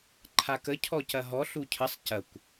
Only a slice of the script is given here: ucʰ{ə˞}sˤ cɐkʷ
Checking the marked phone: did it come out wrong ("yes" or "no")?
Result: yes